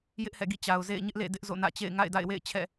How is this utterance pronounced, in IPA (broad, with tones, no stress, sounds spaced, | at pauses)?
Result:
j ɪ˦ ʔ h ɛ̰˦˨ ɡ ḭ˦˨ t͡ɕ a˨ ʊ̯ z ḛ˦˨ ɪ̯ ɲ ɪ˦ ʔ l ḛ˦˨ d ɪ˦ ʔ z o̰˦˨ n ä̰˦˨ t͡ɕ ḛ˦˨ ɪ̯ ŋ a̰˦˨ ɪ̯ d a̰˦˨ ɪ̯ w ḛ˦˨ ɪ̯ t͡ɕʰ ɛ̰˦˨